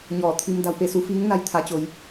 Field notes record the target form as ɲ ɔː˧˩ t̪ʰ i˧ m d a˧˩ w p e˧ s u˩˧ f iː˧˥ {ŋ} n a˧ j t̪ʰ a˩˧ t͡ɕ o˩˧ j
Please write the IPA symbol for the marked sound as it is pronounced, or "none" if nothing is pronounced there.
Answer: ŋ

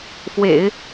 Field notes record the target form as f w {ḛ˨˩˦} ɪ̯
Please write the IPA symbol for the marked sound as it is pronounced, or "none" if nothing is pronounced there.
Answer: ḛ˨˩˦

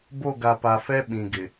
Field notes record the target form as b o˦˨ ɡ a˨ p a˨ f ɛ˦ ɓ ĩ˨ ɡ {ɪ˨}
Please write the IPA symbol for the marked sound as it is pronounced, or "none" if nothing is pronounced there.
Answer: ɪ˨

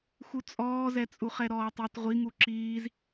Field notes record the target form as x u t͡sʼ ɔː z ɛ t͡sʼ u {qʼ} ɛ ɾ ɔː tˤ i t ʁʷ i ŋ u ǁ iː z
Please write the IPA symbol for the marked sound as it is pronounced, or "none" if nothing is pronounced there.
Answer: χ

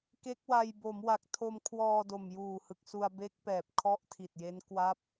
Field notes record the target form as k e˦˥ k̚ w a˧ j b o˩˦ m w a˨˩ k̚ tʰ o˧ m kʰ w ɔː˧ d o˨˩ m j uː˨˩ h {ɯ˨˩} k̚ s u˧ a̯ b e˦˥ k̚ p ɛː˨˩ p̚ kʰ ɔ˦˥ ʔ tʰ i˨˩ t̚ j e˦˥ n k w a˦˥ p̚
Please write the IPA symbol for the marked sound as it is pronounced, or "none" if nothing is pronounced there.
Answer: ɯ˨˩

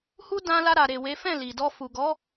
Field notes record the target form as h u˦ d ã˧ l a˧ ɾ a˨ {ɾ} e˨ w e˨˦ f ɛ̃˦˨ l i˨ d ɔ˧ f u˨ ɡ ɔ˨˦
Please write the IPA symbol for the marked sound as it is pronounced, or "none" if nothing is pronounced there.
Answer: ɾ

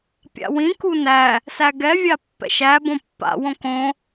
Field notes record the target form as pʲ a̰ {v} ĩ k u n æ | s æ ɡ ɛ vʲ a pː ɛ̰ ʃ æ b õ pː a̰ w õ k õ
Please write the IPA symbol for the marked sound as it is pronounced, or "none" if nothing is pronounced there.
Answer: w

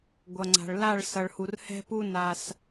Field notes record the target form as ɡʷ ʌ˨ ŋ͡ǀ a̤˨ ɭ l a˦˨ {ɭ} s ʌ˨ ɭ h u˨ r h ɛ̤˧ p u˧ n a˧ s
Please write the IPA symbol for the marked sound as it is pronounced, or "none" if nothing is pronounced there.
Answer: ɭ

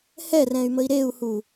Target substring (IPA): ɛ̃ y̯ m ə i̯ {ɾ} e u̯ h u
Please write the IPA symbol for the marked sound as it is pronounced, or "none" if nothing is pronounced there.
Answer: ɾ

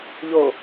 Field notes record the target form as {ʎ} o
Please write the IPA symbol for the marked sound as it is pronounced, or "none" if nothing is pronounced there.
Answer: ʎ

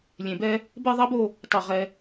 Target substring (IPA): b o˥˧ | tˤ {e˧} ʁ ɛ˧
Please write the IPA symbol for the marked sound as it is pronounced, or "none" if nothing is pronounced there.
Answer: e˧˩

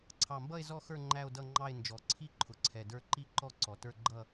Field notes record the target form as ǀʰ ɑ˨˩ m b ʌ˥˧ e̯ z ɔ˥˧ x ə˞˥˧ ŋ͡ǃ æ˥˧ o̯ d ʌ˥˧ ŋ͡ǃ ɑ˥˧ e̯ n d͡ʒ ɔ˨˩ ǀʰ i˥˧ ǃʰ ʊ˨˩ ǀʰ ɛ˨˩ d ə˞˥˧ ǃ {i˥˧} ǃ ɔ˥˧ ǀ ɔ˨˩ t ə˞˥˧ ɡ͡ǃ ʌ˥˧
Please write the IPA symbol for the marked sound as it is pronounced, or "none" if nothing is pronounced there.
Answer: i˥˧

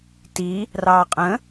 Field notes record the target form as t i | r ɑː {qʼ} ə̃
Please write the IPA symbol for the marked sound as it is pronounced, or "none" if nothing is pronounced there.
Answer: qʼ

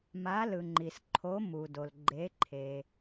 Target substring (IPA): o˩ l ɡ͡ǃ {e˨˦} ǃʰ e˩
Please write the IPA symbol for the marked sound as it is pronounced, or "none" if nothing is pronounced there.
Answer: e˨˦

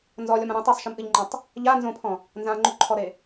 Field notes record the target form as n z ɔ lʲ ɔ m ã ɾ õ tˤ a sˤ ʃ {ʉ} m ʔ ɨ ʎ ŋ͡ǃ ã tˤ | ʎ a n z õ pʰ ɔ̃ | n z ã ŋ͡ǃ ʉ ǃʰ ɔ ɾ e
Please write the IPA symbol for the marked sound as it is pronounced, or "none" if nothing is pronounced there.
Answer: ɨ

